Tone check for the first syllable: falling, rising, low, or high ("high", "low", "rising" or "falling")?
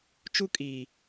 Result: high